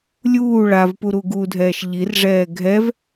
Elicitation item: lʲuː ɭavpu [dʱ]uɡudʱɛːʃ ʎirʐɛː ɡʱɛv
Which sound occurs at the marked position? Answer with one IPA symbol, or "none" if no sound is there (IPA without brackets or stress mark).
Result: ɾ